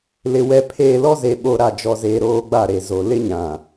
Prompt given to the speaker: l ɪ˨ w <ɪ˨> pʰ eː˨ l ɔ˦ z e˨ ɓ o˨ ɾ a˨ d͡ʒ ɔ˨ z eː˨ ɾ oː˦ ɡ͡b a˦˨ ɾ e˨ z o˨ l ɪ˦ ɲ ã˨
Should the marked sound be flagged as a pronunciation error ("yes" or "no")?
yes